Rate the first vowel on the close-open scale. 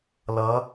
mid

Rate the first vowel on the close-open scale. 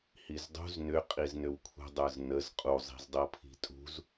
close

